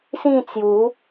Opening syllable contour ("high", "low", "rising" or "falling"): falling